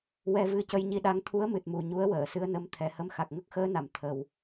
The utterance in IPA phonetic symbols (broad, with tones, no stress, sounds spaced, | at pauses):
w ɛ˧ v ɨ˧ c ə˧ j ɲ i˧ ɗ a˧˥ ŋ t̪ʰ u˧˥ ə̯ m ɨ˨˩ t̚ m u˨˩ ɲ u˧˥ ə̯ w əː˨˩˨ s ɨ˧˥ ə̯ n ə˧˥ m t̪ʰ ɛ˨˩ h ə˧ m x a˨˩ k̚ ŋ ə˦˥ k̚ x əː˧˥ n a˨˩˨ m t̪ʰ ə˨˩ w